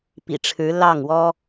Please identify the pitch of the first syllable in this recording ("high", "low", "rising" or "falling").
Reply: low